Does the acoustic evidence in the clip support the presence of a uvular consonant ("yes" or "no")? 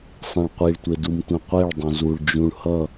yes